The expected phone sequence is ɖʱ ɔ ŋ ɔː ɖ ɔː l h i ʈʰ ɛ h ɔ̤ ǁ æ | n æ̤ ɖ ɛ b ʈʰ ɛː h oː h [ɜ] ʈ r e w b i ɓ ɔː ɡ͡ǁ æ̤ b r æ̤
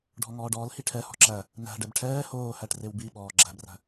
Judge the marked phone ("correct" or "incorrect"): incorrect